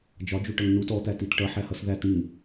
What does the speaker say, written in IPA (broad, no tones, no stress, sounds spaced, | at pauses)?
d͡ʒ ɒ d͡ʒ u ʈ ʌ ŋ n u t ɔ t̪ æ t i t ʈ ʌ ħ æ h ʌ s ð æ t ŋ ĩ